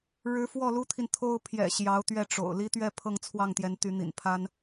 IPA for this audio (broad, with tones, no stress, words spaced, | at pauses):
ɻɻ̩˧˥fwɔ˥˩ lu˥t̪ʰi˨nt̪ʰo˥ʊ̯ pʰjɛ̰˨˩ ɕjɑ˧˥ʊ̯t̪ɥɛ˥˩ʈ͡ʂo̰˨˩ʊ̯ li˥t̪ɥɛ˥˧ pʰɤ˥˧ŋt͡sʰwɑ˥˩ŋt̪jɛ˧˥n t̪y˧˥n̪ḭ˨˩npʰa˥n